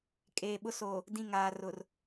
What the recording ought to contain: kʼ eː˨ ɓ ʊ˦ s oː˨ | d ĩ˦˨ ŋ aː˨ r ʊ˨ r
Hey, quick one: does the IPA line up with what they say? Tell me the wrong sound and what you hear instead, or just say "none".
none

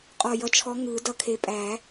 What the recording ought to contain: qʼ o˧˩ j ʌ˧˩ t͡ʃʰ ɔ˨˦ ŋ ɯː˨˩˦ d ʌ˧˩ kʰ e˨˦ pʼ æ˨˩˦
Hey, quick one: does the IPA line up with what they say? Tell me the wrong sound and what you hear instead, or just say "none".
o˧˩ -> ɔ˧˩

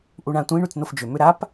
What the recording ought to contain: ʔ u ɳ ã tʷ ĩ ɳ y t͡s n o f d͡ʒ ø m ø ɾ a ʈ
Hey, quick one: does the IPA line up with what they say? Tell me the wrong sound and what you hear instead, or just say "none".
ʈ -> p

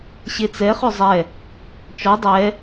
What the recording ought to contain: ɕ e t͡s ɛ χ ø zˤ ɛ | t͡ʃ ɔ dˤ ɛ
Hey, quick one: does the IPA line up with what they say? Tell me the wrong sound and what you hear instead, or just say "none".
none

